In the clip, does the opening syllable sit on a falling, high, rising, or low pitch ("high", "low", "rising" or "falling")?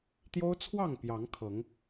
high